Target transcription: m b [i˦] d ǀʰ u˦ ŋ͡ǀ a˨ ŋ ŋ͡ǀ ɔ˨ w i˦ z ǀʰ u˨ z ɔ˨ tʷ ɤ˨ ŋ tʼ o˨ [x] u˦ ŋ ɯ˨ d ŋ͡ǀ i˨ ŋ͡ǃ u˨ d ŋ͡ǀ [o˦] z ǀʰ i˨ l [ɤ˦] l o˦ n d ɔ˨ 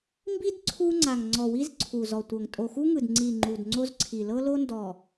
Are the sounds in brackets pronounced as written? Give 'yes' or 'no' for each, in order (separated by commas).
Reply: yes, yes, yes, yes